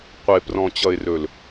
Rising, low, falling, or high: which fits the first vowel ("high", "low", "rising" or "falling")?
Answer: low